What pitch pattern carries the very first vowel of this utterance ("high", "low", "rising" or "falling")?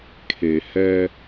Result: low